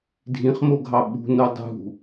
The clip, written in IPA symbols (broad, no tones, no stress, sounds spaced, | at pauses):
dʱ ĩ χ m o ɡʱ ɑ ɓ ṳ n o dˤ ṳ